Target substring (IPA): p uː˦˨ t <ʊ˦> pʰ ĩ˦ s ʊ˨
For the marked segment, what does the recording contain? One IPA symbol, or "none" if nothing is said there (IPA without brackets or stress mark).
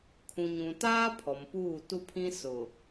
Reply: u˦